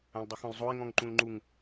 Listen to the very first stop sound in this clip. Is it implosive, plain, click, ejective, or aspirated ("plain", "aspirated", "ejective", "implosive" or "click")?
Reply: plain